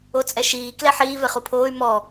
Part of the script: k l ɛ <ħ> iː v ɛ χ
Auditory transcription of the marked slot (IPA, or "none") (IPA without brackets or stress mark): ħ